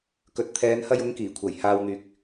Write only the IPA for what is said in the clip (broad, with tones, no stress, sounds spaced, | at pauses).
k ɵ˨˥ t̚ t̪ʰ ɛː˨˧ n h ɐ˧ j ʊ˨˧ ŋ k iː˨˩ kʷʰ ɐ˨˩ j h aː˨ w n̪ yː˨ k̚